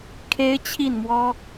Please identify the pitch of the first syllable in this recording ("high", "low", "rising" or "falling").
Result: high